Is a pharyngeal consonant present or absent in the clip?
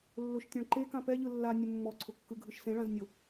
absent